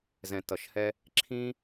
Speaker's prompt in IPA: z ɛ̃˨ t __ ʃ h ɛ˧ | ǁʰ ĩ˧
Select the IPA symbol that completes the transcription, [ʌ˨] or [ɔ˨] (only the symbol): ʌ˨